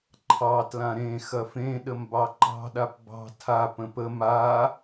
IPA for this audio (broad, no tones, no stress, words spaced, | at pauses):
ǃʰɑtlã ɾẽ xɐfẽ ɗəmbɑǃɑ̤ɗap bɑ̤ tʰa pə̃pə ma